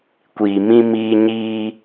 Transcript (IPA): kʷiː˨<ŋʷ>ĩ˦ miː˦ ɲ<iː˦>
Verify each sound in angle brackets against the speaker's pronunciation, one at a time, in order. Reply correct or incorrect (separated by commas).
incorrect, correct